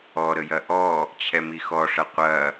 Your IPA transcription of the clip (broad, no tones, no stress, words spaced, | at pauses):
ɔɾəjɐ ʔɔ | t͡ɕʰɛmixɔʂɐ qʷɐ